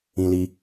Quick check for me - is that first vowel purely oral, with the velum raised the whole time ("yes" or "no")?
no